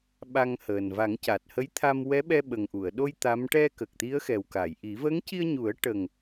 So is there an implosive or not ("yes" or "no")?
yes